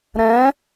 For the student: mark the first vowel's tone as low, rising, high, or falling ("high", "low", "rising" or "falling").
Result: rising